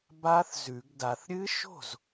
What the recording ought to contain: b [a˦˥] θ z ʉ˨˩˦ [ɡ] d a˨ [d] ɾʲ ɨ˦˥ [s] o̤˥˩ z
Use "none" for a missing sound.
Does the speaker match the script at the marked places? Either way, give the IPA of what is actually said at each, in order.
a˦˥, ɡ, θ, ʃ

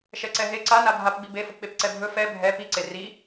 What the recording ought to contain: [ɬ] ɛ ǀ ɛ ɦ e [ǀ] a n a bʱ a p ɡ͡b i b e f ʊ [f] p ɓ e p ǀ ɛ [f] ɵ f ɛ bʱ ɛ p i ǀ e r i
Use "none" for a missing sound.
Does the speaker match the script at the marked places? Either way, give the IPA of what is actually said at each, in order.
ʃ, ǀ, none, bʱ

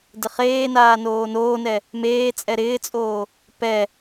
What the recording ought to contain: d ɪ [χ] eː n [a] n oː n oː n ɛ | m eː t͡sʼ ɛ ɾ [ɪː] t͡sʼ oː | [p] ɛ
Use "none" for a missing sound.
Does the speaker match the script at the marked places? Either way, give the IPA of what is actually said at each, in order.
χ, aː, ɪː, p

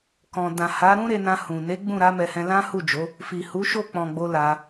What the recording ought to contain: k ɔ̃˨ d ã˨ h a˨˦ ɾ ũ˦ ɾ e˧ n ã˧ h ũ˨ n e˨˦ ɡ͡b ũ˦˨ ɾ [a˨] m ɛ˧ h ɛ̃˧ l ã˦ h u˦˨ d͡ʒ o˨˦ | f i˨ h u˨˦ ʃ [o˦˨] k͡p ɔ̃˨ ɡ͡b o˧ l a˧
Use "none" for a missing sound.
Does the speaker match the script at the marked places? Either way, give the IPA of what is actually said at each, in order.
a˨˦, o˦˨

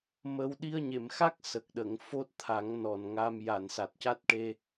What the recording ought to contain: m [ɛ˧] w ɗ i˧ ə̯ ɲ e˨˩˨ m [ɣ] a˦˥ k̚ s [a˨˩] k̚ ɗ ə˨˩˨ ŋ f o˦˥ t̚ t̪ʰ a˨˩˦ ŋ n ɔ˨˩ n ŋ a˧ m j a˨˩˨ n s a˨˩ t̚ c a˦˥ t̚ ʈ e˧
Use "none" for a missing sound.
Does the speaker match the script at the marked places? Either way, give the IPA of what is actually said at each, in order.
ə˧, x, ə˨˩

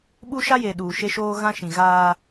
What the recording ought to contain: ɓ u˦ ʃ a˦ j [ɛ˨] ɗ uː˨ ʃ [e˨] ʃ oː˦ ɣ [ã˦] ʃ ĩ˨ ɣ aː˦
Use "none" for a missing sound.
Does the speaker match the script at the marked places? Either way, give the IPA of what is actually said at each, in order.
e˨, e˦, ã˦

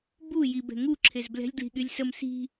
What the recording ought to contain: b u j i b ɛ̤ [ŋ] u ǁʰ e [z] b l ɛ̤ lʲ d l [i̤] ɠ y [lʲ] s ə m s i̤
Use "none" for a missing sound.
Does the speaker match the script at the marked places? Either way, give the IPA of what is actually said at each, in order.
ŋ, z, i̤, lʲ

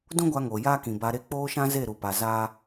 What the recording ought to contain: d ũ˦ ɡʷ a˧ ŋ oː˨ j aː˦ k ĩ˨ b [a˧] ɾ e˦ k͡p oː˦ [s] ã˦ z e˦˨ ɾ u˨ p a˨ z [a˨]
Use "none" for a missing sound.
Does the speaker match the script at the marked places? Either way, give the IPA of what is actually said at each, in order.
a˧, ʃ, a˦

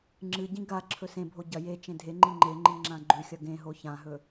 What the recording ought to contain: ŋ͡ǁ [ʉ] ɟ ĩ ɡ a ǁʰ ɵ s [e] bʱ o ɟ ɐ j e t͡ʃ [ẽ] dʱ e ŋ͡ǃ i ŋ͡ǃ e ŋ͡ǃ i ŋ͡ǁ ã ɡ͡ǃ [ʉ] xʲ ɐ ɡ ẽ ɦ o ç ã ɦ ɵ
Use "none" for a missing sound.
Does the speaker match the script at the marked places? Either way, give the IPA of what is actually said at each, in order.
ɨ, ẽ, ẽ, ʉ

